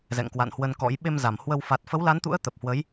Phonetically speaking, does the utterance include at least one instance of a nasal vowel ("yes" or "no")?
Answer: no